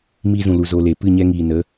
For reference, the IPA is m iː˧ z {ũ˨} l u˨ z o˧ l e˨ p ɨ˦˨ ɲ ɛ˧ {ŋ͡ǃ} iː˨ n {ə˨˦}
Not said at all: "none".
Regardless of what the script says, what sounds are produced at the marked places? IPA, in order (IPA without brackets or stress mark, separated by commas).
ũ˨, ŋ, ə˨˦